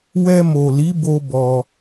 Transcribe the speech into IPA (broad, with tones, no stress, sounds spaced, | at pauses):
w ɛ˧ m o˨ l i˨˦ b o˧ b ɔ˧